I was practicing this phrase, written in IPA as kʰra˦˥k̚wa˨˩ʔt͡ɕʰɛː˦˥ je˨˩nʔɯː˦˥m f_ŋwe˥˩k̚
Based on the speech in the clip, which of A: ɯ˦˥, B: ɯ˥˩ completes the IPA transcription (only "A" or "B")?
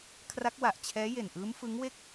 A